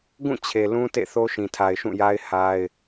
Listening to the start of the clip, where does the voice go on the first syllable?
falling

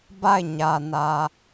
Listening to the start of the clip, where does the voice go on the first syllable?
falling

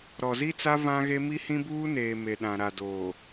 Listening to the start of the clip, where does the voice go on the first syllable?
low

